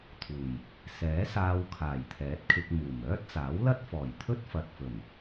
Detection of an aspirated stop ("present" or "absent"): present